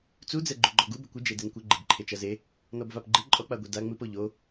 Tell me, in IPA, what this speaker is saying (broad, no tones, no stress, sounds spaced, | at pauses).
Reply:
t͡s u d͡z ɛ ɡ͡ǃ u ɡ͡ǃ ɔ ɡ u b ɘ kʷ ɨ d͡ʒ e d e n kʷ ɘ ɡ͡ǃ i b ǃʰ e t͡ʃ ɐ z e | n ɔ b v a p ɡ͡ǃ ɨ ǃʼ ɔ k͡p a ɡʷ e d a ŋ͡m ɨ p o ʎ o